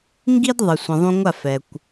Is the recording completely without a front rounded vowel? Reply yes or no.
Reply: yes